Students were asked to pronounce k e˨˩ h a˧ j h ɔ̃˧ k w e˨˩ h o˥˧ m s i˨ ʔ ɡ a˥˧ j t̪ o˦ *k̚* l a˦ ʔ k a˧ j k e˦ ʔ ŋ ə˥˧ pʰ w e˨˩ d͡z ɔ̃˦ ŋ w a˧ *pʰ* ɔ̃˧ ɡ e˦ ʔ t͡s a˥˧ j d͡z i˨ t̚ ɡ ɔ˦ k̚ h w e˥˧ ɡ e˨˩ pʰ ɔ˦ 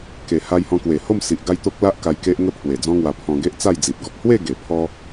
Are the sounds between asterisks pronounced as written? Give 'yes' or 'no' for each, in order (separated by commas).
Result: yes, yes